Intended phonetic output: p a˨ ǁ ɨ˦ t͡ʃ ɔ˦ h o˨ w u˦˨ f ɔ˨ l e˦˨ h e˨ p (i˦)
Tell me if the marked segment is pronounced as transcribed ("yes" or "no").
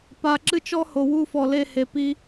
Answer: yes